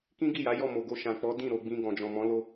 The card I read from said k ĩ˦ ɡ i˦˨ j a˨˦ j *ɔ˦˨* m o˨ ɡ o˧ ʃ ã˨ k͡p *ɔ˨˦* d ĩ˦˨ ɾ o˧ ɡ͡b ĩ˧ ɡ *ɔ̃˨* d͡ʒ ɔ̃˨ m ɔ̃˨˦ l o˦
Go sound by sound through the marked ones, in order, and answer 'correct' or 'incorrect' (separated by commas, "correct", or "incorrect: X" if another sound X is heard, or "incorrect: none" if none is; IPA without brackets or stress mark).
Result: correct, correct, correct